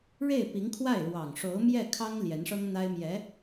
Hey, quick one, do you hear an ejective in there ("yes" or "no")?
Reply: no